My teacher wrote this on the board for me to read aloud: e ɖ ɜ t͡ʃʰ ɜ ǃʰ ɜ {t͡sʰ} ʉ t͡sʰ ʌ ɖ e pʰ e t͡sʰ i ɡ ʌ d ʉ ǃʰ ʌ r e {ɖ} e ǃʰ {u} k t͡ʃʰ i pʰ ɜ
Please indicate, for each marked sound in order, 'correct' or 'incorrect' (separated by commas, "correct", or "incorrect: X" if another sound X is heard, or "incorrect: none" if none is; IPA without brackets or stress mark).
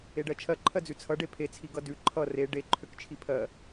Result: incorrect: d͡z, correct, incorrect: ø